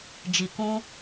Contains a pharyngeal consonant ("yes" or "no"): no